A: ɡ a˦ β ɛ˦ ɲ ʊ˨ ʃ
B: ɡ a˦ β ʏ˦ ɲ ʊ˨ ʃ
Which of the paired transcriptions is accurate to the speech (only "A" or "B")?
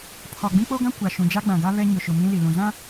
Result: A